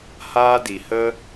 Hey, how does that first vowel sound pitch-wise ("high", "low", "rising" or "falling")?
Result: high